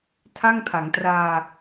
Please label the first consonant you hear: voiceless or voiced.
voiceless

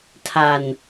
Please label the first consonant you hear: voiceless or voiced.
voiceless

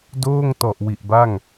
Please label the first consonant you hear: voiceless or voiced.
voiced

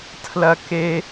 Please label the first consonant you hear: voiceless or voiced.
voiceless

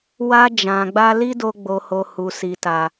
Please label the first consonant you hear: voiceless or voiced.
voiced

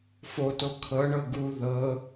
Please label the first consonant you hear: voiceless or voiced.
voiceless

